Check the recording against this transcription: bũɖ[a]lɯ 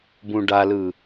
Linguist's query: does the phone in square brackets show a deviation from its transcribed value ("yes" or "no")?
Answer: no